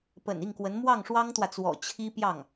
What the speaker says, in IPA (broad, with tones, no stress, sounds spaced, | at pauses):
p ə̰˨˩ n i˥˩ ŋ k w ə˧˥ n m w ɑ˥˩ ŋ ʂ w ɑ˥ ŋ t̪ w ä˨ t͡s w ɔ̰˨˩ t͡ɕʰ i˥ p j ɑ˥˩ ŋ